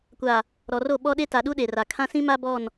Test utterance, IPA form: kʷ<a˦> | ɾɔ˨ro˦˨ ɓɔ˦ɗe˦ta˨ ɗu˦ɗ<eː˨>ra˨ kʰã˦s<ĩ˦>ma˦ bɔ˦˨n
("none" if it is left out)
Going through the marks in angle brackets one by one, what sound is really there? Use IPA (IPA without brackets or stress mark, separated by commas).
a˨, e˨, ĩ˦